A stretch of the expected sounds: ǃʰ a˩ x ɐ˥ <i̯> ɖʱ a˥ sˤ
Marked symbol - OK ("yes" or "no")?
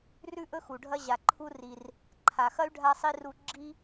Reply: no